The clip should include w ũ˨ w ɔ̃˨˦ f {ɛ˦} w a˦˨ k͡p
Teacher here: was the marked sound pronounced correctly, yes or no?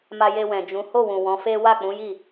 no